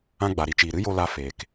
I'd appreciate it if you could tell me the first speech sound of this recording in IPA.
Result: ã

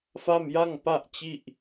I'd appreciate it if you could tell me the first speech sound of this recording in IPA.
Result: f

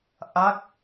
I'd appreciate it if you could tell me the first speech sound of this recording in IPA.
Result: ʔ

